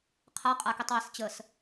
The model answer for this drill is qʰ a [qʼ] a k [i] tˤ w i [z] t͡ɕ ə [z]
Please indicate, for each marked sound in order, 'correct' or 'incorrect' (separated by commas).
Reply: correct, correct, incorrect, incorrect